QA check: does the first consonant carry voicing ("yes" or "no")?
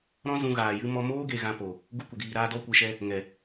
yes